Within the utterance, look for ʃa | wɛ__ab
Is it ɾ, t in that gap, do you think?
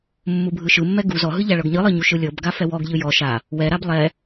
ɾ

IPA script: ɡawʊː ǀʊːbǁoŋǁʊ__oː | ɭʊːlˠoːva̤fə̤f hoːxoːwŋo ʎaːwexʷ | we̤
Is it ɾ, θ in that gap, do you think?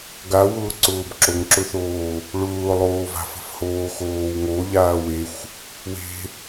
θ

